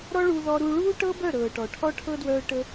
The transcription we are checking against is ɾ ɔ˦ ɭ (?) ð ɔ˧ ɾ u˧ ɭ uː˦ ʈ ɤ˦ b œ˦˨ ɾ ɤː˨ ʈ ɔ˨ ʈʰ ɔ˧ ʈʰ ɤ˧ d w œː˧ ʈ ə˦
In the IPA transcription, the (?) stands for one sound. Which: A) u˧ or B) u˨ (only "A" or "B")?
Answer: A